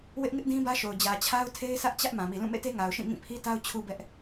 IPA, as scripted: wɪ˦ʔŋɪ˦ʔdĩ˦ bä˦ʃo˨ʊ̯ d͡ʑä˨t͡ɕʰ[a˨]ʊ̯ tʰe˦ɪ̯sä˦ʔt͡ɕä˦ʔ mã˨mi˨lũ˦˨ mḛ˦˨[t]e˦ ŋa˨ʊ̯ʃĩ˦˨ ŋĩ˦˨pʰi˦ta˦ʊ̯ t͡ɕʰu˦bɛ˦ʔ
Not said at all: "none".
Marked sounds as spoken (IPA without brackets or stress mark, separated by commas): a˦, t